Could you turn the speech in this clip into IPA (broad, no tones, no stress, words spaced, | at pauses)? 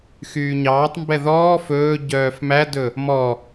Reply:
xyːɲɑːtˤmbɛ ðɔː fɵː ɟœːfmædɵ | mɔ